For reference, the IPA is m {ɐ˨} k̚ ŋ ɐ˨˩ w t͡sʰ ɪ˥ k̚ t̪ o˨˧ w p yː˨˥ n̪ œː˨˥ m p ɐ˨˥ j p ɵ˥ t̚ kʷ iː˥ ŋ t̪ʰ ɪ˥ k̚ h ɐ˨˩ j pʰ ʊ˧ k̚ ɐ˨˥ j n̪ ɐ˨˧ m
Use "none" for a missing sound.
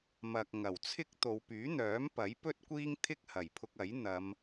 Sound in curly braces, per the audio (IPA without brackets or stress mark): ɐ˨